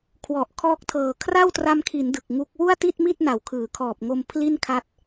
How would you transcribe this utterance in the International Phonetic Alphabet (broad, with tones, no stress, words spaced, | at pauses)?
kʰwɔ˨˩ʔ kʰɔː˦˥k̚tʰɤː˨˩ kʰra˥˩wtra˧mkʰi˩˦n dɯ˨˩k̚ŋu˦˥k̚ wu˥˩a̯ti˥˩t̚mi˥˩t̚ na˨˩wkʰɯː˩˦kʰɔː˨˩p̚ŋo˧m pʰli˥˩nkʰa˦˥t̚